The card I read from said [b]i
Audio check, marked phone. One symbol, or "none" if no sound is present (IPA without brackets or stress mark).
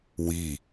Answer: w